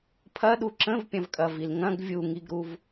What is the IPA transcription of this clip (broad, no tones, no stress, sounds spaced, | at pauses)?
pʰ ɐ ɗ u ǁ ə̃ v pʲ ɐ̃ v kʼ ɐ v i l ŋ ɐ̃ ɡ vʲ u ŋ i ɡ ɾ u v